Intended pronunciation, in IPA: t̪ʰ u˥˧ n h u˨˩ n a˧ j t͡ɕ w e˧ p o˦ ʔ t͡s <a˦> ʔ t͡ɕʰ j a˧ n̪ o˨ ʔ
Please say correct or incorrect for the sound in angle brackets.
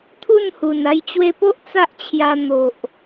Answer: correct